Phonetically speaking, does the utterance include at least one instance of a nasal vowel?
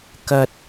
no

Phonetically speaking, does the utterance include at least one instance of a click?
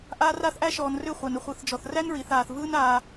no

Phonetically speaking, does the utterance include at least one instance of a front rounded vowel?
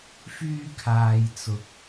yes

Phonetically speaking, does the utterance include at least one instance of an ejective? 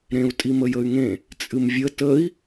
yes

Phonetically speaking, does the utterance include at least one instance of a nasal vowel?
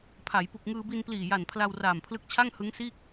no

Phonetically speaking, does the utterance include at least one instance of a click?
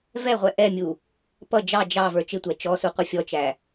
no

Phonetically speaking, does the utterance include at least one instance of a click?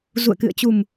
no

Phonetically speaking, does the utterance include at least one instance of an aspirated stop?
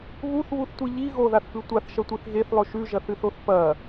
no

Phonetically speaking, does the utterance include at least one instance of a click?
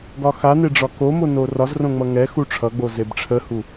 no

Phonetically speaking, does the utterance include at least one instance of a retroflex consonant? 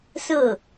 no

